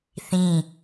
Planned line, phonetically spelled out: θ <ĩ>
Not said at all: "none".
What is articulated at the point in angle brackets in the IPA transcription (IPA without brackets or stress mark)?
ĩ